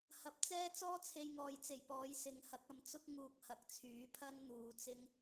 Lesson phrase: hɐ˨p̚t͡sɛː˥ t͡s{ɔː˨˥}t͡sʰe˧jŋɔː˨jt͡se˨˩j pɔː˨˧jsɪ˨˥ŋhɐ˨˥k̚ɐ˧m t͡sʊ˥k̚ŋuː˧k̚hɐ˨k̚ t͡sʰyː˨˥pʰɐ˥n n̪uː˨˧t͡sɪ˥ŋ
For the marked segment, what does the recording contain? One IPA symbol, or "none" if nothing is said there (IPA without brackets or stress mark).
ɔː˥